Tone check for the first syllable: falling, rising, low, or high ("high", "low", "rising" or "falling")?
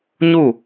falling